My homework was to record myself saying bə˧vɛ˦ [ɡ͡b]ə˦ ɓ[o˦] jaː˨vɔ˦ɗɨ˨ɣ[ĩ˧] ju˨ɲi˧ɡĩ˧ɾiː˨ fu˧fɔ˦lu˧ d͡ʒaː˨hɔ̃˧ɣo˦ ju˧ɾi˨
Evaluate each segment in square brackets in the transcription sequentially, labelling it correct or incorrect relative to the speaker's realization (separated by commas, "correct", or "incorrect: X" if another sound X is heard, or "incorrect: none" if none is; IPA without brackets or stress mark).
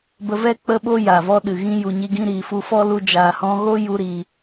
incorrect: k͡p, correct, incorrect: ĩ˦